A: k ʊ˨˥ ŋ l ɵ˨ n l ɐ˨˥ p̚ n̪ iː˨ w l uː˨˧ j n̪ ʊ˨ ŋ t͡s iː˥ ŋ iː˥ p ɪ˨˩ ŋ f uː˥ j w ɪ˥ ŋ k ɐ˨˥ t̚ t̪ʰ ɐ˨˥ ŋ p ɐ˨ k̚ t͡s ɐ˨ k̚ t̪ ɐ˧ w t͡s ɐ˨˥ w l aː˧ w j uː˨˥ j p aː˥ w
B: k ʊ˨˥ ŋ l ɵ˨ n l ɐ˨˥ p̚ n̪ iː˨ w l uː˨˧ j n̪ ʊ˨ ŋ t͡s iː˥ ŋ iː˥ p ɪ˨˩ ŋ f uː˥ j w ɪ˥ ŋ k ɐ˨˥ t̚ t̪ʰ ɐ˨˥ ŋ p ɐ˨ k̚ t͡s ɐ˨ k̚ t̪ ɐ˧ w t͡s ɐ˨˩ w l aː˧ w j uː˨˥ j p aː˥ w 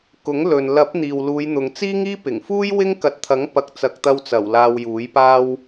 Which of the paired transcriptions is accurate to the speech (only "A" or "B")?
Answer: B